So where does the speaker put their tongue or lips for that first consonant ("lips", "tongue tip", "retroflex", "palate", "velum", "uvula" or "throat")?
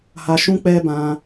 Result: throat